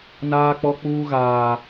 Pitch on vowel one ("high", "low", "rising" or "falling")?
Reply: high